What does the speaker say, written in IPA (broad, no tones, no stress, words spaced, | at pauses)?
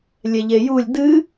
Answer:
lʲɛʎejulʲ dɨ